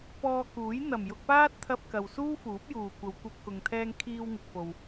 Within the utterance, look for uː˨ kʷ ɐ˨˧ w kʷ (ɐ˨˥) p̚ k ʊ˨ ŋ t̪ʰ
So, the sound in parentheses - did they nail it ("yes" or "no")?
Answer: no